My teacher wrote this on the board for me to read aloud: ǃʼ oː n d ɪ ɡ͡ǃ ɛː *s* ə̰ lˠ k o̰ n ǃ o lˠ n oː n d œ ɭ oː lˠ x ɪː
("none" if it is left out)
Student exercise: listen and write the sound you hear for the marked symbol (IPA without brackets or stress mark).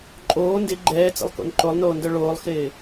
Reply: t͡s